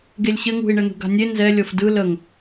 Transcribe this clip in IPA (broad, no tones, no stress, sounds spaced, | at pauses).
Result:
ɡ e lʲ ɕ ɘ ŋ ṳ i̯ ɳ ɘ n ṳ ɡ a̤ nʲ e n z ɛ lʲ ɤ f d ɯ l ə ŋ